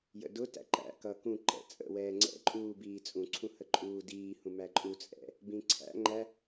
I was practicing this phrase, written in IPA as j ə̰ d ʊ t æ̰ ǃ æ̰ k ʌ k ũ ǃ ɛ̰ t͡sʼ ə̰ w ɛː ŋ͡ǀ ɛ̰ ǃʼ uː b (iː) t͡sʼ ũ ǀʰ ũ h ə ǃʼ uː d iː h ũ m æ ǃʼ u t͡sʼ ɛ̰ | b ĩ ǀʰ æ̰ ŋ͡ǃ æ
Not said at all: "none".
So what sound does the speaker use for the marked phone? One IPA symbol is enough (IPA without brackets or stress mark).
iː